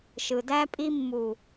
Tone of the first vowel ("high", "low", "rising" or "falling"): low